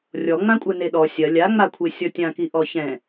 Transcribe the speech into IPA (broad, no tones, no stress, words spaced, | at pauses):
rʲɔŋ͡mãkʷʼɛ neɗɔ sʲɐ lʲaŋ͡makʷʰe sʲɔtʲãki ʔɔçɛ̃